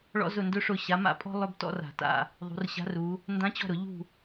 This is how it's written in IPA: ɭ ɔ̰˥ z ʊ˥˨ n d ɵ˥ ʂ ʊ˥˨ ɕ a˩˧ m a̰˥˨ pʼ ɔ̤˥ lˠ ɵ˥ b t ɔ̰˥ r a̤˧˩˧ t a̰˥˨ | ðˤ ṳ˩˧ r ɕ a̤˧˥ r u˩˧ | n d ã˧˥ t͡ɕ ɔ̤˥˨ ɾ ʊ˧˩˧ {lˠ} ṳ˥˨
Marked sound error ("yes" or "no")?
yes